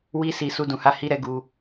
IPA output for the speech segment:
wi˦ si˧ su˦dũ˧ha˦ hi˦ɾɛ˦ɡu˧

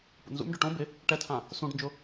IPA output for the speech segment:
pṵnzṵmɖʊ ʈõ bɪ | ʈɛtʰã | sũɖnd͡ʒʊ

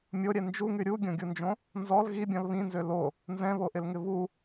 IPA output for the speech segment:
mʲoɾʲɛ nd͡ʒuŋy ɾʲuɡʲõɡʲund͡ʒõ | nzɔl ɣibʲɔ̃l βĩnzø lo | nzɛ̃βoʔɪlŋɪ βu

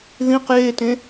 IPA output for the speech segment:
ðĩq jetẽ

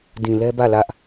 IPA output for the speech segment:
dĩ˨lɛ˦bä˦˨ lä˦ʔ

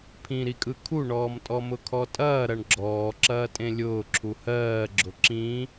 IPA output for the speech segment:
pʰĩɾikʼɯ kʰuɳɔːm tʼɔmʊkʰɔtʼɐː ɾɐɳɡ͡ǁɔːǁɐː tʼẽlʲʊːǁʰu hɜː ɡ͡ǁʊǁĩ

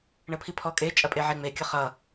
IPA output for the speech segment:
ɳəpʰipʰɔkʼe t͡ʃʼɐpʼeʕeŋ͡me kʲəχʌ

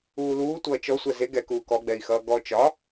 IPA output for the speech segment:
uːluːtʷʌː t͡ʃɔsʷɛ ze ɡɛkuː kɔɡ͡bɛi̯ xʌːɡɔ t͡ʃɒ

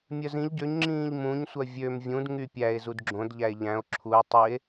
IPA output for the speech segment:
mʲœzĩʎ ɟøɲ ŋ͡ǁĩːʎmũɲ sʷœvʲøm vʲũd ŋypʲæe̯ zudɡ͡ǁõd ʎæe̯ʎæ̃o̯ ǁʰue̯ tˤie̯

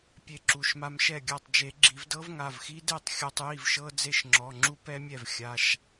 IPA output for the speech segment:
pʲe˧ǁu˩˧˩ʃma˧mʃɛ˥˩ ɡʲa˥˩tˤd͡ʒe˨˩˦ɡ͡ǁi˨˩˦v dɤ˦˥vŋa˩˧˩vxi˦˥de˥˩tˤ xʲɔ˧tˤji˥˩vʃɤ˦˥ d͡ze˥˩ʃŋ͡ǁɔ˩˧˩ŋ͡ǁu˦˥ pɛ˦˥mʲɛ˥˩v xʲa˩˧˩ʃ

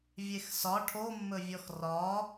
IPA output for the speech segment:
vʲexsɒ ʈʰomːɵvʲɔx rɒ

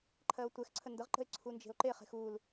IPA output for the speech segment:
ǃʰɜo̯tʷɛxǀʰə ndəʁǃə̤e̯ ǀʰund͡ʒe̤o̯ǃeχe̤x ul

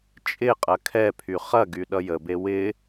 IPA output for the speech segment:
t͡ʃʼɪqʼɐ kʰɛpʰy χɐɡy ɗʌjəbe wɪ

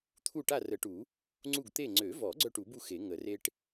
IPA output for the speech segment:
t̪ʰu˥˨ʈa˥˨ rə˨˩˦ʈu˨˩˦ | ŋ͡ǀu˥˨ɡt̪e˥˨ ŋ͡ǀø˨˩˦vɔ˨˩˦ ɡ͡ǀœ˥˨ʈu˨˩˦bu˥˨ xe˨˩˦ ŋə˨˩˦re˥ʈ

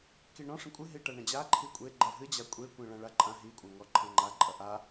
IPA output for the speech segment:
kiɳɔ̃ ʂɐ̃kʷʼɨ ɦiʈɐɳɐ̃d͡ʑa ǃʰikʷʼe ɡ͡ǃɛɦɨ d͡ʑakʷʼe kʷẽɭɐ̃ɭaǃʼã ɦi kʷʼɐ̃ŋɔǃʰɐ̃ŋ͡ǃa ǃʼɐʔa

